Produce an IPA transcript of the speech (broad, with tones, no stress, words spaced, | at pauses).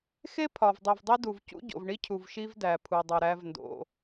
xe˦ pʰɒ˨vdˤi˨vdˤi˦du˨v cṵ˦ɟo̰˨vɳi˦cʰu˨v ʃi˦vdæ˨pʰu˨dˤu˨ ɾæ˦vndo̰˦